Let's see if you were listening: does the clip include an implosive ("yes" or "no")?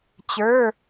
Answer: no